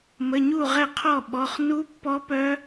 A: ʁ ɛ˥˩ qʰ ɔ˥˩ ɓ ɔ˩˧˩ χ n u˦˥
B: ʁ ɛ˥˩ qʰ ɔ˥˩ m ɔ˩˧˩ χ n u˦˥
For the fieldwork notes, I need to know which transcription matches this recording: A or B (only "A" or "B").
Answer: A